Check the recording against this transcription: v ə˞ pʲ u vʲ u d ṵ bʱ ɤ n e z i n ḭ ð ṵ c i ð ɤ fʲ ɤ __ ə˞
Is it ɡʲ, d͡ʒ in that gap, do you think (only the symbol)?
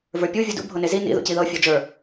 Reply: d͡ʒ